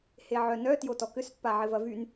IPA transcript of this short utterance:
h e ʕ œ n œ t j o t ɔ k ʏ s pː a ʕ ɪ v ɐ v y n

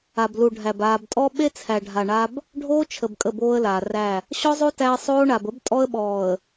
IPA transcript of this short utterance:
a˨ b l u˨ ɖʱ æ˨ b aː˨ b tʼ ɔ˦ ɓ e˦ t͡sʰ æ˨ ɖʱ a˨ ɳ a˦ b | ɖʱ oː˦ t͡ʃʰ ə˨ b kʼ ə˦˨ b oː˦ ə̯ l aː˨ r æ˦˨ | ɕ ɔ˦ zˤ o˦ t æ˦ ə̯ sˤ oː˦ ɳ a˨ b ə˦ b tʼ ɔ˦ ə̯ ɓ ɔː˨ ə̯

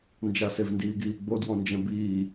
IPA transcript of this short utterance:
n d͡ʒ a s e v n d iː ɡ iː ɡ͡b o d w ɔ̃ n d͡ʒ ɛ̃ b iː

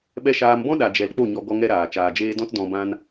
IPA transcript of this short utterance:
ɓ ɛ˧ ʃ aː˧ m b ɔ̃˦ ɗ a˨ d͡ʒ ɛ˨ l k͡p o˦˨ ɲ ɔ˧ ɡ ɔ˧ ŋ ɛ˧ ɾ aː˨ t͡ʃ aː˨ d͡ʒ eː˧ d ɔ̃˦ t d ɔ̃˧ b ã˦ n

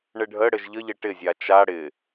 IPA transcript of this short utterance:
ɳ ɘ ɖʱ ə ɽ ɘ ʒ ʎ ə ʎ ɘ ʈ ɪ zʲ a t͡ʃ a ɽ ɪ

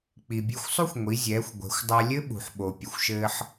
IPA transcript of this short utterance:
k͡p i˩ bʲ e˧ xʷ sˤ u˥ xʷ ŋʷ i˩˧ zʲ ɛː˩˧ xʷ ɡʷ ɛ̤˩˧ xʷ dˤ a˧ lʲ ɘ˥ ɓ ṳ˩ ħ ɓ o˩ pʲ ɐ˩ xʷ ʃ ɘː˧ ħ

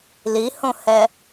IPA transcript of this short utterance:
l i h õ h ɛ

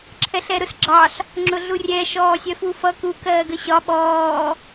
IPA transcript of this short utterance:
ǁʰ ɛ ɬ ɛ ɾ ʊ s ɡ͡ǁ ɑ ɬ | ŋ͡ǁ ʊ ɮ u rʲ ɛ ʃ ɔː sʲ ɜ f u f ʌ k u k ɜː ɡ ə ɕ ɒ ɓ ɔː

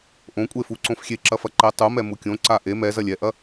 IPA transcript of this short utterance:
ʔ õ kʷʼ e f u ǀ õ f xʲ e ǁ ɐ f ɐ ǃ ɛ tˤ u m ɛ m u kʲ õ ǀ a ʔ e m ɛ z ɐ lʲ ɛ ʔ ɐ

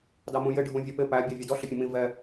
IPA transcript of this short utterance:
d ɑ m ũ j ɪ ɖʱ ũ vʲ ʌ p ɪ p æ bʲ ɑ vʲ ɛ d ɔ ɬ ɪ pʲ ə̃ m ĩ v ɛ

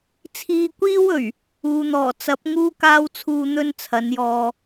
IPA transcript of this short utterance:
t͡sʰ iː˧ kʷ iː˥ w ɵ˨˩ ɥ | uː˨ n̪ ɔː˨˩ t͡s ɐ˨˥ p̚ ŋ uː˥ k aː˥ w t͡sʰ uː˧ n̪ ɵ˥ n t͡sʰ ɐ˨˥ n j ɔː˧

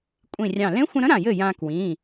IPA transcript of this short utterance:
kʷʼ ĩ˧˩ rʲ ɑ̃˧˩ l ẽ˧˥ xʷ ə̃˧ ɾ ə̃˧˥ ɾ ã˧˩ j ɘ˥˩ j ã˧ k w ĩ˩˧˩

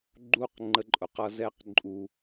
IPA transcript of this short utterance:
ɡ͡ǃ u˧ q ŋ͡ǃ ə˧ ǃʼ ʊ˨ q ʌ˧ z ɛ˦ q ǃʼ u˧

